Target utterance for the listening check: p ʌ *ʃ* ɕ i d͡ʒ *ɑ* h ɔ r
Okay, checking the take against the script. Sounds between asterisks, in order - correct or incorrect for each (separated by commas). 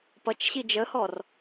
incorrect, incorrect